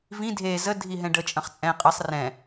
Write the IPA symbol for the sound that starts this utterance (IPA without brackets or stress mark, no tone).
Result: v